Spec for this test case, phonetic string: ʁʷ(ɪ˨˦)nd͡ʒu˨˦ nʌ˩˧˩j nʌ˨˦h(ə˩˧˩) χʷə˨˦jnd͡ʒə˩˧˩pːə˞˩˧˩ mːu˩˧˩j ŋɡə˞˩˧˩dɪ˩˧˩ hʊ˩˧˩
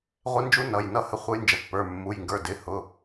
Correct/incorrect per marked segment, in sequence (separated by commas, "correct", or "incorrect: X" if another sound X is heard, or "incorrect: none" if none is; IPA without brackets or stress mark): correct, incorrect: ə˨˦